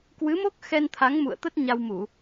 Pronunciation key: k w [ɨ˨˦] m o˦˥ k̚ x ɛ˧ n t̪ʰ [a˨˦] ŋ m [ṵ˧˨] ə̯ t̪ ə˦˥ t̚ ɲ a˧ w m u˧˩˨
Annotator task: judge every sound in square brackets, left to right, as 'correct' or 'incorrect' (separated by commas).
correct, correct, correct